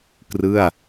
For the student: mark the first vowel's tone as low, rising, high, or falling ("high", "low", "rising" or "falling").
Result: falling